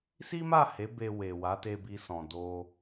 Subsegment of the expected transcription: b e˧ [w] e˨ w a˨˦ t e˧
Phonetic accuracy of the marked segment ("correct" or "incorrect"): correct